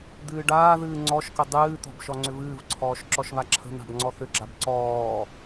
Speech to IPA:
d̪ɨːɖaːðɨː ŋ͡ǀɔʃkə dˤɨːt̪ɔ̤b ʃɔŋ͡ǀʏvɨːvǀʰɔːʃ ǁɔʃβaǁʰə̤n̪a̤b ŋ͡ǀɔθʏɡ͡ǁab ǀɔː

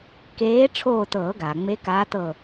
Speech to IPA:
keː˧˥ ʈ͡ʂʰoː˦˨tɤː˨˩˦ɡaː˩ ŋ͡me˧˥kaː˧˥tɤ˦˨

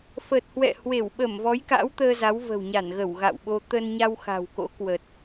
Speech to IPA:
fəː˨˩t̚hwɛ̰˧˨hwe˧˩wɓə˧˩m vɔ˨˦jka̰˧˥wt̪əː˧ za˨˦wvə̤˨˩wɲa˧˩nɣə˧˩w ɣa̰˧˨wɓo˧ t̪ə˧nɲa˧wxa̤˨˩wko̰˧˥ kwə˨˩t̚

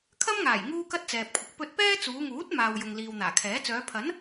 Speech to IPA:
kʰɐ˥mŋaː˨˩j ŋuː˥kɐ˥t̚t͡sɛː˨p̚kʷʰɪ˨k̚ pɵ˧t̚pɛː˥t͡suː˨˧ŋuː˨˥t̚ maː˨wjʊ˨ŋ liː˨wn̪aː˨˩kʰɛː˨˥ t͡sœː˨˧pʰɐ˨˥n

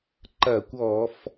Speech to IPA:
ǃɐː˧˩˧kʷɔː˧˩˧f

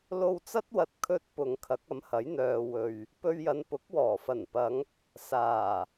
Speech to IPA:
lo˧wt͡sɐ˥t̚wɐ˧t̚ kʰɵ˧t̚pʊ˨ŋ kʰɐ˨˥k̚ɐ˨˥mhɐ˨˥j n̪œː˨ wɵ˨ɥ | pɵ˧ɥjɐ˨˧npʊ˨˥k̚wɔː˨˩ fɐ˨˩npɐ˨˧ŋ | saː˨˩

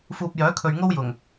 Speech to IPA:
fuː˨p̚ jœː˨˥kʰɵ˨ɥŋo˥wjʊ˨˩ŋ

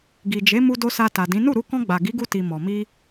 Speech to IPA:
ɡi˨d͡ʒe˨˦ mu˧do˧ sa˧ta˨dĩ˨˦ nu˦˨ɾu˧ kɔ̃˧ɡ͡ba˨ ɡi˨˦ɡu˧ti˨ mɔ˨mi˧

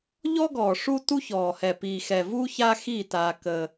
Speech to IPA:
ʎɔ˦ɡɔː˨ ʂu˦tu˦çɔː˨hɛ˨ piː˨xɛ˨ vuː˦çaː˦xiː˦˨ taː˦kəː˦

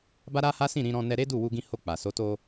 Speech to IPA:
ba˦ɾa˦ha˦sĩ˦˨ ɾĩ˧ɾɔ̃˧ nɛ˧ɾe˦du˦˨ wu˧ɡĩ˧ ho˧k͡pa˨so˨˦to˧

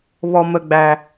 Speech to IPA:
βɔ˨mə˨ɡ͡bæ˨

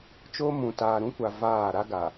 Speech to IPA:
t͡ʃo˦mũ˨ taː˨ɾũ˦kʷa˨ vaː˦˨ ɾa˦ɡa˨

